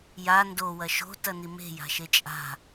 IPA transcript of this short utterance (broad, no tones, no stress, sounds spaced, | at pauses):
j a n d o w ɐ ʃ o̤ t ɐ n i m e̤ j a̤ ʃ e t͡ʃʼ a̤